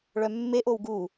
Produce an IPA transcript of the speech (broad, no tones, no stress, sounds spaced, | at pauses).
ɭ œ mː e ʔ o w ɡ u